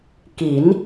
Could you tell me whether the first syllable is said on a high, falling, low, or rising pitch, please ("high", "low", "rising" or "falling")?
rising